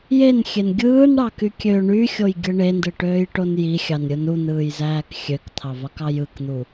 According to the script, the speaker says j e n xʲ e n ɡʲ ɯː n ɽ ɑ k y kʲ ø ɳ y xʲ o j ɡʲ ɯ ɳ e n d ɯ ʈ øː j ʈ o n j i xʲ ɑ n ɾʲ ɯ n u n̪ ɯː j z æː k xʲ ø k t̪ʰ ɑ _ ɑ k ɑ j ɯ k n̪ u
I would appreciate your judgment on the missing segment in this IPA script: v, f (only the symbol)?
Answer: v